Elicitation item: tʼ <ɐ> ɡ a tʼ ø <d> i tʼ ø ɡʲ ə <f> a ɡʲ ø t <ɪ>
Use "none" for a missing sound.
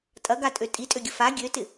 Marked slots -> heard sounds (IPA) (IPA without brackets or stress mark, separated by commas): ɐ, tʼ, f, ɪ